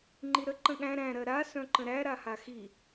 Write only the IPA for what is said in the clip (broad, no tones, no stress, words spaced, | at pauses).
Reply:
ŋ͡ǃiɾə ǃə̃ɠæ̃ ɾæ̃ ɾɜɾa sœ̃ǃə̃ɾæ ɾahaxi